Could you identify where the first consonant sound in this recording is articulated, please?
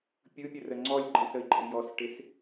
labial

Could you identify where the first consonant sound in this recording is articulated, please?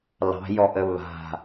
alveolar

